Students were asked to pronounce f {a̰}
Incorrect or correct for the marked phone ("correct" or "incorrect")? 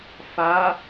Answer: incorrect